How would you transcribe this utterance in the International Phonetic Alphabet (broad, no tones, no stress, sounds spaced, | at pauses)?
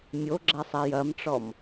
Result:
mʲ o ɡ͡ǁ a sˤ ɛ j ɐ m ʈ͡ʂ ɔ m